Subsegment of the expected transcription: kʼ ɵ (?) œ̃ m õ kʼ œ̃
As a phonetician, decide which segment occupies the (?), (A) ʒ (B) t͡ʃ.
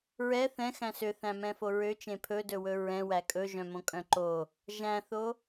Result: A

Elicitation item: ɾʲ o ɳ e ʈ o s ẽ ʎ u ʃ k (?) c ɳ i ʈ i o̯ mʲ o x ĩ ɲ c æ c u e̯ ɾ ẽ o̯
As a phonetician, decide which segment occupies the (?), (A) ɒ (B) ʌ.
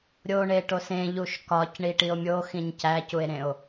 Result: A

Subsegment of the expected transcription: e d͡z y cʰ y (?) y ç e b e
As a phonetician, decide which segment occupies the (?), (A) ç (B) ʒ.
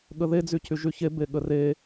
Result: B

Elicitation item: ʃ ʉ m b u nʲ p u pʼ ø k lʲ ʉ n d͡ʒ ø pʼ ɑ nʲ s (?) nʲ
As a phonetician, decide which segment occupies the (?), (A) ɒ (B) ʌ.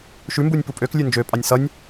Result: B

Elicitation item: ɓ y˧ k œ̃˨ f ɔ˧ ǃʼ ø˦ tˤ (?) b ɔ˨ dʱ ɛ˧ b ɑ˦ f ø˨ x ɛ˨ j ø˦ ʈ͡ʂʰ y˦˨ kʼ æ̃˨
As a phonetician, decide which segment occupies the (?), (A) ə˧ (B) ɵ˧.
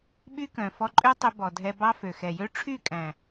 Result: B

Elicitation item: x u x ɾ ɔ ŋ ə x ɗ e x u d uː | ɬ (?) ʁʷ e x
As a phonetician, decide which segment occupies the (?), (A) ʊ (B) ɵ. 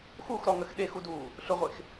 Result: A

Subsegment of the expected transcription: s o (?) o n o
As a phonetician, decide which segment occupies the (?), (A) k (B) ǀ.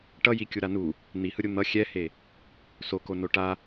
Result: A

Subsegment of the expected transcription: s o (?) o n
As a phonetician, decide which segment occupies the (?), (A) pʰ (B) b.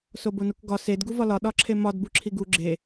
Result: B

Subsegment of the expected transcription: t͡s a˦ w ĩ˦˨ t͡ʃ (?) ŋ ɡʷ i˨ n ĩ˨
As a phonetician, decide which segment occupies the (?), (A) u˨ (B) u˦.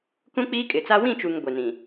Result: A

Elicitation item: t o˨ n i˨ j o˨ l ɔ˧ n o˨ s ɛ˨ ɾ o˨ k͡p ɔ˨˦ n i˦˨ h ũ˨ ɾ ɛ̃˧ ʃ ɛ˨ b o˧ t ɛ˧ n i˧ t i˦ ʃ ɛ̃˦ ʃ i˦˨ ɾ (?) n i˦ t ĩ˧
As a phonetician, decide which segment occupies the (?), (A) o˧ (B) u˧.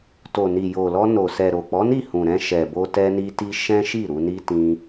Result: B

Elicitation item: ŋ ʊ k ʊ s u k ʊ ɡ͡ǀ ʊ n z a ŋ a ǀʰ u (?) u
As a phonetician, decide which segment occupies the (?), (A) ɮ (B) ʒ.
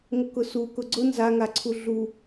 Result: A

